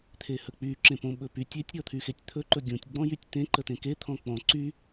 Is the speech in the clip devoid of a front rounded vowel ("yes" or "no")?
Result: no